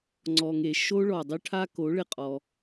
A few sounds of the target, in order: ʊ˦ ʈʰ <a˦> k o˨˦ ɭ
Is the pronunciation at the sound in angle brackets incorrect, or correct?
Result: correct